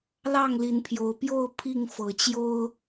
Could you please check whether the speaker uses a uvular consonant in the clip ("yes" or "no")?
no